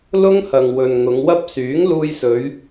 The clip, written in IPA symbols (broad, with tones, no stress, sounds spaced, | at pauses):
l ʊ˥ ŋ h ɐ˨ ŋ w ɵ˨ n ŋ ʊ˨˧ ŋ w ɐ˥ p̚ s yː˨˥ ŋ l uː˧ j s ɵ˨˧ ɥ